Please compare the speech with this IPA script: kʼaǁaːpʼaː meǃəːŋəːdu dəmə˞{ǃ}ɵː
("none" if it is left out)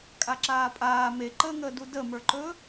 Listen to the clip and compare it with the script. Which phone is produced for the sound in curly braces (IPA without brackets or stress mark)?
ǃ